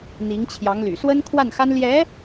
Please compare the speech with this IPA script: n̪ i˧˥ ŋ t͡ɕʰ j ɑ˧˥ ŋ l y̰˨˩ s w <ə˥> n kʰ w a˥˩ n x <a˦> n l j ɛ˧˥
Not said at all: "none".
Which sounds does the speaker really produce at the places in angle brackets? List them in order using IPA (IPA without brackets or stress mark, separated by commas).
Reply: ə˥, a˥